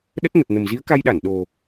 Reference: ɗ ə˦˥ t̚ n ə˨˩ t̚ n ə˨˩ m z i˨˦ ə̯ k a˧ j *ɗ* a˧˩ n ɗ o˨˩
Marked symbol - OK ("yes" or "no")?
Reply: yes